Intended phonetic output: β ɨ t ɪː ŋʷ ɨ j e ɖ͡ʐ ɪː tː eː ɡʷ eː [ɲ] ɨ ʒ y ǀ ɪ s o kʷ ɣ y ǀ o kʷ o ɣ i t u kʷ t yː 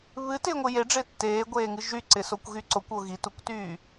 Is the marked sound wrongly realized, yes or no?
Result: yes